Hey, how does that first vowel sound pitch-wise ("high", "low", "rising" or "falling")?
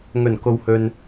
low